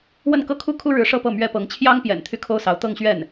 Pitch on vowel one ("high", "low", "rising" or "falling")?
falling